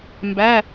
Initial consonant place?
labial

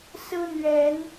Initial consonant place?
alveolar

